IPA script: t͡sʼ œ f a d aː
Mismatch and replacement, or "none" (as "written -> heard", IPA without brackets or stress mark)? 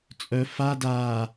none